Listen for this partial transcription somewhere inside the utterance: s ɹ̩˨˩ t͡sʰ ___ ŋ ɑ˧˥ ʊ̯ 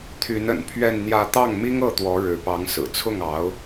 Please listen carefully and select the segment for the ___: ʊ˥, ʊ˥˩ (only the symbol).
ʊ˥˩